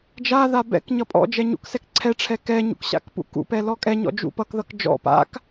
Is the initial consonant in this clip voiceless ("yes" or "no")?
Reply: no